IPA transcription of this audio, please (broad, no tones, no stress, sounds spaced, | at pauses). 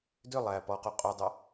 d ʏ lˠ æ p ɔ q o qʼ o dˤ ʌ